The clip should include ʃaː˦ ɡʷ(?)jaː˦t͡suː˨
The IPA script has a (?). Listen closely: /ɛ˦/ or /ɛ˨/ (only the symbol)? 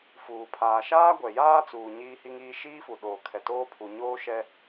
ɛ˨